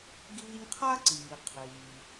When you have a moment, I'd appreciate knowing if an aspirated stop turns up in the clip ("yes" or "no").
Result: yes